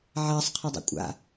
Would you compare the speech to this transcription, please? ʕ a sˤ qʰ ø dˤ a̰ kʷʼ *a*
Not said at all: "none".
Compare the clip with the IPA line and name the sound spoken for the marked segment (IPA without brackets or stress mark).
a̰